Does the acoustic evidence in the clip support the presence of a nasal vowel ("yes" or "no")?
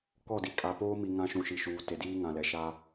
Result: yes